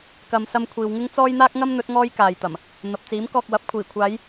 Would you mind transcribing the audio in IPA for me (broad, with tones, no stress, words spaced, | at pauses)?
kɐ˨˧msɐ˧mkʷʰiː˨w ŋɪ˥ŋt͡sɔː˥j n̪aː˥k̚ŋɐ˥mn̪ɵ˨˥t̚ ŋɔː˥jkaː˨jt̪ɐ˨˩m | n̪ɐ˨p̚t͡siː˨˥m kɔː˧k̚wɐ˨˥p̚ kʷʰiː˨˩kʷʰaː˨˧j